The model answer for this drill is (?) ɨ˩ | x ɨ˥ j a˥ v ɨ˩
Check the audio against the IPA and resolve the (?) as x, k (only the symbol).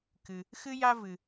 k